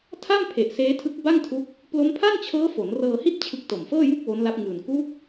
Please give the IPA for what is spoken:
tʰa˥˩mpʰe˨˩ʔ seː˦˥tʰɯ˦˥k̚ ba˥˩ŋtʰu˦˥k̚ | plo˦˥mpʰa˥˩nt͡ɕʰɤː˦˥ fo˩˦nrɤː˧hi˥˩t̚ t͡ɕʰɯ˦˥k̚to˨˩mfɤː˥˩ju˥˩k̚ wo˦˥nla˦˥p̚ŋɯː˨˩n ku˦˥k̚

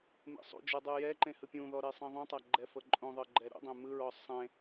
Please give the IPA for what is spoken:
mḛsˤṵd͡ʒɯ dˤɯjɛǃẽ hɯpʲũðɔ ɾesˤĩðˤũtˤa ɡ͡ǃɛfɤǃʼũðˤɤ ɡ͡ǃɛɾṵdˤẽ mɯɹɔ sˤẽ

